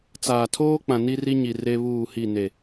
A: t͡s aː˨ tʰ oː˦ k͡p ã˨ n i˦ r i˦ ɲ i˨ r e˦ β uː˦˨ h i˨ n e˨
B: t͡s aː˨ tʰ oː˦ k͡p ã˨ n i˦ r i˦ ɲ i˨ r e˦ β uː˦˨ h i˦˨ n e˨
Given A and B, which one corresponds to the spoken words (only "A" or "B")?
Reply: B